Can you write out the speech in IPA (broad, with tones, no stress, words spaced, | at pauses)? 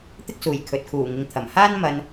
t̪ɪ˥k̚suː˨˩j kʰɵ˨t̚kʰuː˨˩ŋɪ˨ŋt̪ʰɐ˨˩m haː˥n mɐ˧n